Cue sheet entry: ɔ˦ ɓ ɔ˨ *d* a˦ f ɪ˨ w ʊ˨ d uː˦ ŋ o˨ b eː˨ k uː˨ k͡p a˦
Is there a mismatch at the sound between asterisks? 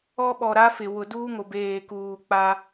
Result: yes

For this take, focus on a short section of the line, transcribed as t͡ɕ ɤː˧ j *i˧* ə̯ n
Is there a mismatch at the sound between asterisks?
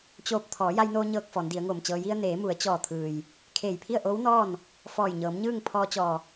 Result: no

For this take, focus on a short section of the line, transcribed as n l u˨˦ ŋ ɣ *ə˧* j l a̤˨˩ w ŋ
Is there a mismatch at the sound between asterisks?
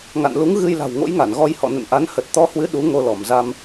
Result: yes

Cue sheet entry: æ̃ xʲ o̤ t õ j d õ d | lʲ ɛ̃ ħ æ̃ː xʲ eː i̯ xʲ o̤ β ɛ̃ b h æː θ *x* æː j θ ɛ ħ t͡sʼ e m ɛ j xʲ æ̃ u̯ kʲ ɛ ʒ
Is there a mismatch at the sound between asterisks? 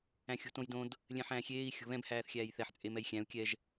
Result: yes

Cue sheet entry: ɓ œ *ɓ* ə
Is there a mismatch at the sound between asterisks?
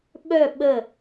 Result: no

